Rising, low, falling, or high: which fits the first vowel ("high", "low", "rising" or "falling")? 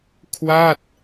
falling